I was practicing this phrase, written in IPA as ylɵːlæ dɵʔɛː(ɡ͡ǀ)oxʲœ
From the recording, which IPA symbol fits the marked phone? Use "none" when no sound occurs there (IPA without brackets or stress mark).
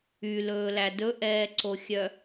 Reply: ǀ